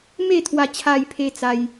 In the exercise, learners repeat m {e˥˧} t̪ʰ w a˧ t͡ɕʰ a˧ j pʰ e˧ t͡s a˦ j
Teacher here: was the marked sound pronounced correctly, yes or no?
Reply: yes